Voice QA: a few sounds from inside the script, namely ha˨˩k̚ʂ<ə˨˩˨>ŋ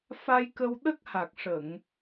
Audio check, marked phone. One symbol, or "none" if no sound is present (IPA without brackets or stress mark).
ə˨˩˨